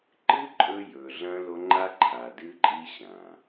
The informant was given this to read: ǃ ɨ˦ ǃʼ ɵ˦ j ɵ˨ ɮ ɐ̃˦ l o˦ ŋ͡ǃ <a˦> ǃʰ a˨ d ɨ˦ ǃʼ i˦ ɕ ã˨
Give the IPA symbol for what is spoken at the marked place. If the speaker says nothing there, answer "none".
a˦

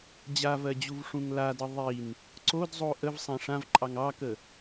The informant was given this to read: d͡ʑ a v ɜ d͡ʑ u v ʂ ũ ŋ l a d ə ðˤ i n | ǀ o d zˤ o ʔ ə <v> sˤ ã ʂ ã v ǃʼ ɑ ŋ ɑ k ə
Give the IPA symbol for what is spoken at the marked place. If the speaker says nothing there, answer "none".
v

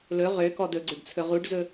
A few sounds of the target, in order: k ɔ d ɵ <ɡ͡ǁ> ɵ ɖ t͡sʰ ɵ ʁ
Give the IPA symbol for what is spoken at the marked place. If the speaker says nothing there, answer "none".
ɡ͡ǀ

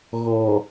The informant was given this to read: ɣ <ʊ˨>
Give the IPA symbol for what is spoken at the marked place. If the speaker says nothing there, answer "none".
ɔ˨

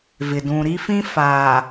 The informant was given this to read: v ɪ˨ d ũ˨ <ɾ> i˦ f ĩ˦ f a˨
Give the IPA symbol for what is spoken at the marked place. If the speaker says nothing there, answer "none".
ɾ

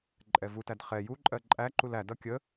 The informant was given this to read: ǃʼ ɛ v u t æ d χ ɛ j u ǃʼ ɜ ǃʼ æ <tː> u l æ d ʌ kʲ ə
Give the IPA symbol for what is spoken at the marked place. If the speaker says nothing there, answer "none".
ǃ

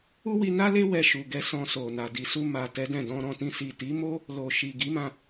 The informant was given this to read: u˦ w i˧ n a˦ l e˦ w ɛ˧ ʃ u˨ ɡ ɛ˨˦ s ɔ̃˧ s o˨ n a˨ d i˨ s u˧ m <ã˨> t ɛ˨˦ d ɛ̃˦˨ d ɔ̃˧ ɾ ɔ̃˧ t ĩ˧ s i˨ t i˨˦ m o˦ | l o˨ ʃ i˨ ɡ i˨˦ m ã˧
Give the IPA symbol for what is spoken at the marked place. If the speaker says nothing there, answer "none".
a˨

